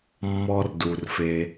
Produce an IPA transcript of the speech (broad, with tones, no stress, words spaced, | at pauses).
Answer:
mːɔ˦rdu˨rfe˨